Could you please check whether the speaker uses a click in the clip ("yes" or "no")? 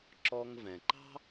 yes